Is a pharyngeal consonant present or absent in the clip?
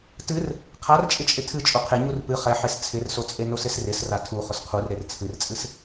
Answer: present